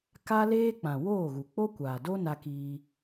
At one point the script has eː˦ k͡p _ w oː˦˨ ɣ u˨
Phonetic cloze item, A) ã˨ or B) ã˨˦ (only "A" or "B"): A